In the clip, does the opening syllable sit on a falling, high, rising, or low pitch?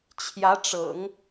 rising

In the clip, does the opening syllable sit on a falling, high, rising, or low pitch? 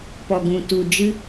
low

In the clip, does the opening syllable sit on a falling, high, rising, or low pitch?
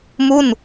falling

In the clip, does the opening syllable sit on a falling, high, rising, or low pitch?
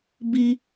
high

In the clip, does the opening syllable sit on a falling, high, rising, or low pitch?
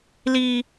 high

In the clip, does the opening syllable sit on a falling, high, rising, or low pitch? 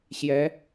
rising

